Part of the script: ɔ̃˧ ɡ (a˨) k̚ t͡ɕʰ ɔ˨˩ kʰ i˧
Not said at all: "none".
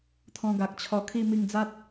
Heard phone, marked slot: a˨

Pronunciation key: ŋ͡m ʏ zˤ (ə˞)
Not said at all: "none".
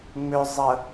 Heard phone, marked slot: ə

